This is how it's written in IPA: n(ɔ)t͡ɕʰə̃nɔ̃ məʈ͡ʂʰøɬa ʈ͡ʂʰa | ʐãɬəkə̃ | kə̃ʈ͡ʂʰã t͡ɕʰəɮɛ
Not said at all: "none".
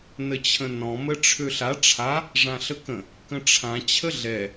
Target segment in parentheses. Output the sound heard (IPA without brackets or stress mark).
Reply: ə